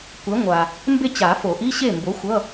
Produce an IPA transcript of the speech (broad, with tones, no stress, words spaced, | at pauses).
kʷɛ˨˥ŋʷa˨ | mbe˥˨t͡ɕa˨˩˦ fo˨˩˦ʔi˧˥˧ɕe˥˨ mbo˨˥xʷʌ˧˥˧